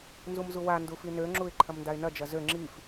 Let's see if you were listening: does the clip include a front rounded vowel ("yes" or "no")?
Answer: yes